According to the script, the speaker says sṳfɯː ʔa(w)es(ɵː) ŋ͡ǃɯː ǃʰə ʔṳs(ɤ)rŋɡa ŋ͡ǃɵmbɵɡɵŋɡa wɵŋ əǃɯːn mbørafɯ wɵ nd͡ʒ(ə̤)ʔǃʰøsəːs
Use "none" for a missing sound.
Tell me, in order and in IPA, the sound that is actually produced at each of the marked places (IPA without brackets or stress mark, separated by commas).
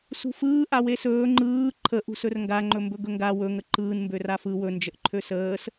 w, ɵː, ɵ, ə